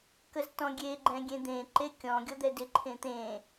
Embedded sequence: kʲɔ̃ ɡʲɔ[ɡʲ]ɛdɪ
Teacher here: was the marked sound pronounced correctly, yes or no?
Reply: no